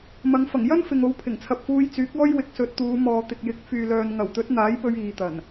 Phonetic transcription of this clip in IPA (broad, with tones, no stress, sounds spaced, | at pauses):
m ɐ˨˧ ŋ f ɐ˨˩ ŋ j ɐ˥ n f ɪ˨ ŋ o˨˥ w pʰ ɪ˨˩ ŋ t͡sʰ ɐ˨ p̚ f uː˧ j t͡s yː˨˥ k̚ ɔː˥ j w ɪ˨˥ k̚ s ɵ˨ t̚ t̪ uː˨˧ m ɔː˨ t̪ ɪ˨ k̚ j ɪ˨˥ k̚ f yː˨ l œː˨ n ŋ ɐ˨˩ w t̪ ɵ˨˥ t̚ n̪ aː˨˥ j p ɵ˧ ɥ iː˨ t̪ ɐ˨˩ n